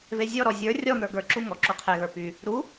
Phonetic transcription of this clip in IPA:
v e zʲ ɔ ɾ ɔ zʲ ə˞ rʲ ɔ n̪ ə˞ ɡ ə˞ ǁ u ŋ ɔ ǁ u qʰ e ɣ ə˞ p y | ɾ u

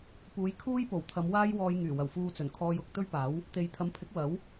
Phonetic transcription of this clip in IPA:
p uː˨˧ j kʰ uː˥ j p o˨˩ w t̪ʰ ɐ˨˧ m w aː˥ j w ɔː˧ j ŋ yː˨˩ w ɐ˨˩ w f uː˧ t͡s ɵ˨˩ n kʰ ɔː˧ j ʊ˧ k̚ t̪ ɵ˥ ɥ p aː˨˥ w | t̪ e˨ j t̪ʰ ɐ˨˥ m pʰ ɪ˨˥ k̚ w ɐ˨˥ w

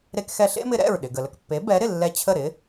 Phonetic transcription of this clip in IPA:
ɾ e˧ k x ɛ˧ ɬ ḛ˥ m ɪ˧ ɾ ɛ̰˥˩ ɹ ɗ ɪ˩ ɡ ə˩ l ə˥˩ k pː e˩˥ b ɛ˩˥ ɾ ɪ˥˩ lː ɛ˧ t͡ɕʰ ə˥˩ ɾ ɪ˩˥

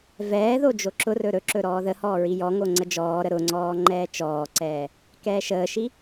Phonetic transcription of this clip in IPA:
v ɛː ð o d͡ʒ o ǁ ʊ r ɵ ɾ ɵ ǁ ɵ ɾ ɔː ð ə h ɔː ɹ i j ɔ ŋ o ŋ͡ǀ ə d͡ʒ ɔː ɾ ə ɾ ʊ ŋ͡ǀ ɔː ŋ͡ǃ ɛː t͡ʃ ɔː ǀ ɛː | k ɛː ʃ əː ʃ i

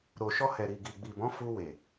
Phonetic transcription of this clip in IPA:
ɾ o˨ ʃ ɔ˧ h ɛ˨ ɾ i˨ ɡ i˨ ɡ͡b i˨ b ɔ̃˨˦ f u˧ w e˨

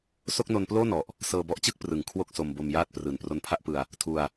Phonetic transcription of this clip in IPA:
s o˥˩ k̚ n o˧ n p l oː˥˩ n ɔ˨˩ ʔ | s ɤː˧ b ɔ˦˥ ʔ t͡ɕ ɯ˥˩ k̚ p r ɯ˨˩ ŋ kʰ w o˥˩ k̚ s o˧ m b o˧ m j aː˥˩ t̚ p r ɯː˨˩ n p r o˧ n pʰ a˥˩ ʔ p ɯ˧ a̯ | tʰ u˧ a̯

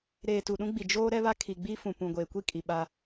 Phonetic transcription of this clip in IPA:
ɾ eː˨ t u˨ ɗ ũ˦ ɡ͡b i˨ d͡ʒ oː˦ ɾ ɛ˦ β a˦ kʰ i˨ ɡ͡b i˦ f ũ˨ p ũ˨ ɡʷ eː˨ kʷ i˦ kʼ i˨ ɓ a˦

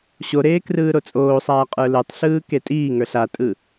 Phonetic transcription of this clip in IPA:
ɕ o ɾ eː k r ɯː ɾ o t͡sʼ oː sˤ aː qʼ ə˞ l ɯ tˤ ɬ ɯː k e tʼ iː ŋ ə˞ ɬ a tʼ ɯ

